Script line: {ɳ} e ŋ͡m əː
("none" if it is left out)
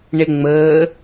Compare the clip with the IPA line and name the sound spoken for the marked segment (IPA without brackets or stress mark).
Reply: ɳ